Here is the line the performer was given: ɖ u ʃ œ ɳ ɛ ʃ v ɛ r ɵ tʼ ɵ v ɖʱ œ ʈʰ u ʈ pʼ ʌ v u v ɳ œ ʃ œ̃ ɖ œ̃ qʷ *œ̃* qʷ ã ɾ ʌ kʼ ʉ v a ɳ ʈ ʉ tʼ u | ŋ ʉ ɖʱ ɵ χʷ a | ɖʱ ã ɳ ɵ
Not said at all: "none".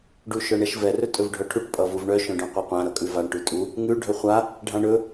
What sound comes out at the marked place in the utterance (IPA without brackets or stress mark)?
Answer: œ